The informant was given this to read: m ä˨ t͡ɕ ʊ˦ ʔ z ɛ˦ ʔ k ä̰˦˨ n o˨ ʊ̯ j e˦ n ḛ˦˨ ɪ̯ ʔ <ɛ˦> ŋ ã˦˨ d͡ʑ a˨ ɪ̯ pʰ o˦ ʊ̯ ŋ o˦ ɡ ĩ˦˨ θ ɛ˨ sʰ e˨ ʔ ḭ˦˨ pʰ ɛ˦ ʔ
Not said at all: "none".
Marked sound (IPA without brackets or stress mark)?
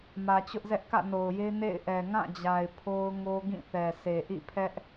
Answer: ɛ˨